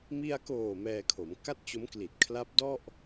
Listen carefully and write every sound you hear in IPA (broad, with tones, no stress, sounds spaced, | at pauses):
m i˧ a̯ k oː˨˩ m ɛː˧ kʰ o˩˦ m k a˥˩ t̚ t͡ɕ o˦˥ m k l i˨˩ t̚ kʰ l a˦˥ p̚ d ɔ˥˩ ʔ